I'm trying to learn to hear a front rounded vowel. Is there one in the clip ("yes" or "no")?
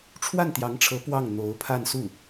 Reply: no